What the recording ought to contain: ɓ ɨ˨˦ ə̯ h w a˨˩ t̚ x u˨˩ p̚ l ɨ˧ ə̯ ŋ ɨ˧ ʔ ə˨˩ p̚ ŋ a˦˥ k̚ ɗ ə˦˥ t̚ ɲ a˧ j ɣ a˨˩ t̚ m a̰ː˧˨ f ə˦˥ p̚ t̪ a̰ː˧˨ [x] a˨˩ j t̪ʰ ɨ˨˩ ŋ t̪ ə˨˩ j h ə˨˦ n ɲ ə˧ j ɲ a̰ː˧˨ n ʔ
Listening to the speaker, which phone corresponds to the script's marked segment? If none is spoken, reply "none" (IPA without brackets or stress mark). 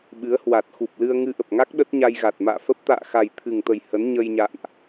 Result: x